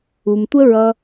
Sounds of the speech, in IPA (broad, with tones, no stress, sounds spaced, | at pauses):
u˨ m tʷ ə˦ ɹ ʌ˧